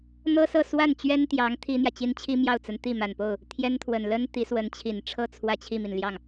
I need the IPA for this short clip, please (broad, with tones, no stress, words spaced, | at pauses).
n̪ɤ˥sɤ˥˧ swa˥˩nt͡ɕɥɛ˥nt̪jɑ˧˥ŋ t̪ʰi˥n̪jä˨t͡ɕi˥n t͡ɕʰi˥mjɑ˥˩ʊ̯t͡sə˧˥nt̪i˥˩ ma˨˩npo˥˩ʊ̯ | t̪ʰjɛ˥nt̪ʰwə˨˩n lə˥n t̪i˧˥swə˧˥nt͡ɕʰi˨˩nʈ͡ʂʰɤ˥˧ t͡sʰwä˥˧t͡ɕʰi˥˩mi˩n ljɑ˥˩ŋ